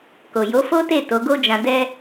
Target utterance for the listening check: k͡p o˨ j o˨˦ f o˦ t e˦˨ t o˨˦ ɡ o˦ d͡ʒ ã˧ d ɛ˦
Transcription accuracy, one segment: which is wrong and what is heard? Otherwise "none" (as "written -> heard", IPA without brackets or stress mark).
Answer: k͡p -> k